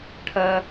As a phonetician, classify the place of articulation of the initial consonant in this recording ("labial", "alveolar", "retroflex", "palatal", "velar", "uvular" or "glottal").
retroflex